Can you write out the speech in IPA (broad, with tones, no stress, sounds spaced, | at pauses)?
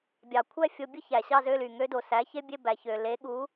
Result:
bʲ ɑ˨˩ kʷʰ æ˥˧ fʲ o˧ bʲ ɯ˦˥ ç æ˨˩ ɕ ɑ˥˧ z ø˧˥˧ l y˨˩ ŋ ø˦˥ d o˨˩ s æ˨˥ ç e˦˥ bʲ e˧˥˧ b æ˨˩ ç ø˨˩ l e˨˥ ɠ u˨˥